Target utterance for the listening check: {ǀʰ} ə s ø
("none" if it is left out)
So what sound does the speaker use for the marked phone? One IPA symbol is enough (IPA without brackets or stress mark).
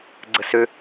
ɡ͡ǀ